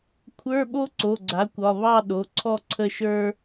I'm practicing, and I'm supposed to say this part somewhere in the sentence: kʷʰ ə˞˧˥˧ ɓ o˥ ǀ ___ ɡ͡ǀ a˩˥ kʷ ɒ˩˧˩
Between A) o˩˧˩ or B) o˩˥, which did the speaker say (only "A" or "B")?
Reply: A